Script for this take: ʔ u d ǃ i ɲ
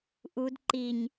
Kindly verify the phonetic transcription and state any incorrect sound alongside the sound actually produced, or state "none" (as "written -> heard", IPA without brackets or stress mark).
none